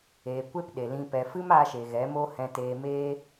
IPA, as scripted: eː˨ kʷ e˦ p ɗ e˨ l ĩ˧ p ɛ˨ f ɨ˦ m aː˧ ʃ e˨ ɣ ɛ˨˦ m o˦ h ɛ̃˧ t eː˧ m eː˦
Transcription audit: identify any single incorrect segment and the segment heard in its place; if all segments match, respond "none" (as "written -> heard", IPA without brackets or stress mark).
none